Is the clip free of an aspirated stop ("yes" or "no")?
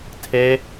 no